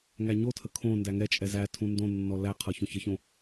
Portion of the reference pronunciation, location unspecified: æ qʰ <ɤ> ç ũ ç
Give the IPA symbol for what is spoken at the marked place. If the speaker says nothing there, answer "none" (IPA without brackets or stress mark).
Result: ɤ